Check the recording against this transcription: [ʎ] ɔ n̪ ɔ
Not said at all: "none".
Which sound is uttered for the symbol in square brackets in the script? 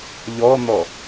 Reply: ʎ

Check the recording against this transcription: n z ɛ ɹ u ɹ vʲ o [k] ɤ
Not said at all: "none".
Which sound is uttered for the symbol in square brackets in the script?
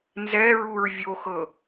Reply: x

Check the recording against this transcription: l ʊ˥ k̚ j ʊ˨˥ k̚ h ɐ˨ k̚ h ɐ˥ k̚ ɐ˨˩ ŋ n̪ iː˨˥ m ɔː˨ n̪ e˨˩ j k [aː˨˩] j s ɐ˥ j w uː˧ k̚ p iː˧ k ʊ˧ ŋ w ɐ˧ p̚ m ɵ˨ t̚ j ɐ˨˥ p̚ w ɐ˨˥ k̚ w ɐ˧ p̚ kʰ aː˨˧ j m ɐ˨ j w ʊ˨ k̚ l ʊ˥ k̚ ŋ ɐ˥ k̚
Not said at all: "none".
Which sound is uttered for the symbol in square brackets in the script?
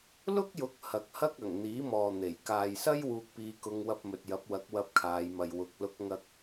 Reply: aː˨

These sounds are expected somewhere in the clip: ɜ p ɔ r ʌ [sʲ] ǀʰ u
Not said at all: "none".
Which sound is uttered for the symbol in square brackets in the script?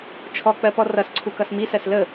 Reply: s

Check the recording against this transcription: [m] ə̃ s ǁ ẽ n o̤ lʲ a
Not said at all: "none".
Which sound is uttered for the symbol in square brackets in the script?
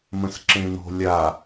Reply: m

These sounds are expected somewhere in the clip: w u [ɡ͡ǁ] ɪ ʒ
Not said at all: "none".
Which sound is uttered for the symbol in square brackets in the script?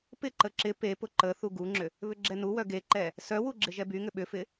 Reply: ɡ͡ǁ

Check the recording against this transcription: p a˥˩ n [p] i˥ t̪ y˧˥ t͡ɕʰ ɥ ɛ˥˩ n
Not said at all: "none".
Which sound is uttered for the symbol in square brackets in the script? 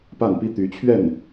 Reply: p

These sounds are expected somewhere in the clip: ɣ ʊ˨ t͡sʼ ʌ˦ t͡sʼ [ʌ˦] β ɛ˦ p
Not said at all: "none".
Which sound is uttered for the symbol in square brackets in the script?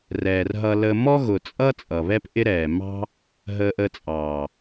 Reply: ʌ˨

